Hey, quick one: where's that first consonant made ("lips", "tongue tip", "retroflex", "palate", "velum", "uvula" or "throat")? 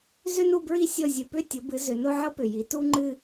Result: tongue tip